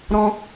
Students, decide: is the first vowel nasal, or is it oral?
nasal